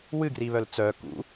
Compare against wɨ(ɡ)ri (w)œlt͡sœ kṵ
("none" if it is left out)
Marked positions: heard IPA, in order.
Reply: ɡ, β

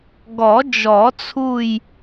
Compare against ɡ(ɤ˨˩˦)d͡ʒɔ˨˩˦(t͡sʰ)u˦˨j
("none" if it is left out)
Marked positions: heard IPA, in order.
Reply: ɔ˨˩˦, t͡sʰ

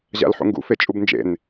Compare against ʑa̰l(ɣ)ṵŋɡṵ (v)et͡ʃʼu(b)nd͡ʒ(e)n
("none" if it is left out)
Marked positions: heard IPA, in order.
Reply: ħ, f, b, ḛ

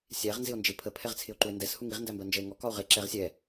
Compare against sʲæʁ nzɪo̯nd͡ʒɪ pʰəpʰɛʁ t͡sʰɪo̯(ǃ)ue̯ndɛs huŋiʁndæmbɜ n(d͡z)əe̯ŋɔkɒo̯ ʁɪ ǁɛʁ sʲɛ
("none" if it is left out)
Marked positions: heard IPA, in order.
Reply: ǃ, d͡ʒ

